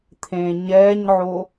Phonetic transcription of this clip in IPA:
t̪ʰ ẽː ɲ ɛː ɲ ʕ o

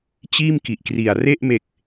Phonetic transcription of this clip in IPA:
t͡ɕ iː˥˩ m k i˨˩ ʔ k r i˨˩ a̯ r e˥˩ ʔ m e˨˩ k̚

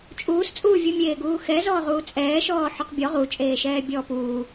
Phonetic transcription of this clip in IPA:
t͡ʃʼ uː s t͡sʼ uː vʲ u mʲ eː ɡ uː x ɛ z ɔː ʁ uː t͡sʼ ɛː ʃ ɔː ħ ʏ q bʲ ɔ ʁ u t͡ʃʼ eː ʃ ɛː bʲ ɔː p uː

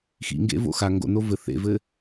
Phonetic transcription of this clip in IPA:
x ḭ ŋ ɡ ḛ v o̰ x a ŋ ɡ o̰ n o v ɘ θ ḛ v ɘ

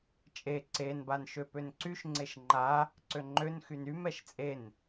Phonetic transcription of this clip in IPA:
t͡ʃʼ e ǀ e n b a n ʃ ø p ø n ǀ y ʃ ŋ͡ǀ e ʃ ŋ͡ǃ a | ǀ ø ŋ͡ǃ ø n x y n y m ɛ ʃ t͡sʼ e n

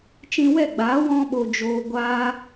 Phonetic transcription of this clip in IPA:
t͡ʃ ĩ˧ w ɛ˦˨ ɡ͡b aː˨˦ w ɔ̃˦ ɓ o˧ d͡ʒ oː˧ ɡʷ aː˦

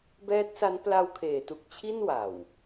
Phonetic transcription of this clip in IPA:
b ɛː˦˥ t̚ s a˦˥ n p l a˧ w kʰ eː˩˦ t u˨˩ k̚ t͡ɕʰ i˥˩ n w a˨˩ w

